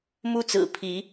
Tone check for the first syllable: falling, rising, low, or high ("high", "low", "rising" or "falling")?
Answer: high